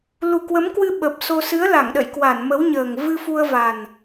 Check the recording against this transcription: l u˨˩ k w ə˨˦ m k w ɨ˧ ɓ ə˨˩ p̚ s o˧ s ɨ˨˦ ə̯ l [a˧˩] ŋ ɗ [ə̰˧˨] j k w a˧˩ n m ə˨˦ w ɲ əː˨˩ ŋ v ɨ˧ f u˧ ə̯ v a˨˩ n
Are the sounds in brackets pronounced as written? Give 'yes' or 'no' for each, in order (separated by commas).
yes, yes